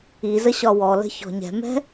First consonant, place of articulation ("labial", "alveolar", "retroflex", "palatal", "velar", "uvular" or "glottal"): alveolar